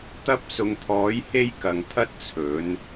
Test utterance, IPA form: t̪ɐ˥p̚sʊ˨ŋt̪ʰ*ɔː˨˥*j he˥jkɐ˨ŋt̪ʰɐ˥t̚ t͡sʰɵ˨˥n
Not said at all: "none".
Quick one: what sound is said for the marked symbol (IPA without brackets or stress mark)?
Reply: ɔː˨˥